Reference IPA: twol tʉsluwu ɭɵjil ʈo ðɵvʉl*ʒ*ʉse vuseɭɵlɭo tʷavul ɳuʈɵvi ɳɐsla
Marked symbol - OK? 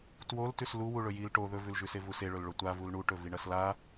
yes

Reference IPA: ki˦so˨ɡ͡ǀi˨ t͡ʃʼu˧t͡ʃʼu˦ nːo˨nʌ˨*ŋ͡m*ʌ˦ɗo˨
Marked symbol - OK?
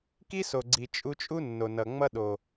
yes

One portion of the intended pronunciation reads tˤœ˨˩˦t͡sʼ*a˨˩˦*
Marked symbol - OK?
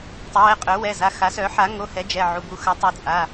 no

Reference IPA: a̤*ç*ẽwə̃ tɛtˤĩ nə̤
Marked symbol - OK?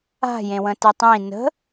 no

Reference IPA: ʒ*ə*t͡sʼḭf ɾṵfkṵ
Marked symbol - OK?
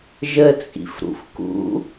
yes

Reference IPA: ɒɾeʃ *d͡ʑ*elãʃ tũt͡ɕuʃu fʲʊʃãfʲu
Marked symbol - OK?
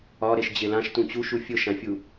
yes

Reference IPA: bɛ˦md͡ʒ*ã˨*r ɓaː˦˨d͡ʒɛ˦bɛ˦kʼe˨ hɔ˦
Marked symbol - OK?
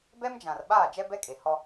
yes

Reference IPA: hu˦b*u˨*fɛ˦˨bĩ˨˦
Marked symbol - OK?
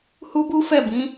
no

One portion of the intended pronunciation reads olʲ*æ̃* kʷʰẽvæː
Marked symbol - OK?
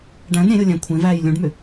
yes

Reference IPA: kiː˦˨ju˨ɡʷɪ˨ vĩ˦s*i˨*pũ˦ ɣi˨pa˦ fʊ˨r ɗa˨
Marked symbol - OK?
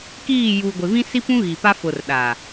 no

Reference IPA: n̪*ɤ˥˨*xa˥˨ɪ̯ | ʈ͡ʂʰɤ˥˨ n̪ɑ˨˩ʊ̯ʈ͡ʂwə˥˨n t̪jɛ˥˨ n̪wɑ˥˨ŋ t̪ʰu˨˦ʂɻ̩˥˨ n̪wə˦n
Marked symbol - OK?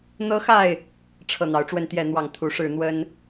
no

